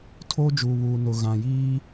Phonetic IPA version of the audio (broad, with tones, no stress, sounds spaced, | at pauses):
tʰ oː˦ d͡ʒ uː˨ β uː˨ n ʊ˨ ɣ ã˨ j iː˦